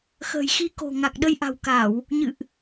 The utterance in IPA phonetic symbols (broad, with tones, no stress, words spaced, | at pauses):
xə̤ː˨˩jxi˧ko̤˨˩ŋa˨˩k̚ ɗə˧jʔa̤˨˩wka˧˩˨w | ɲɨ̰˧˨ʔ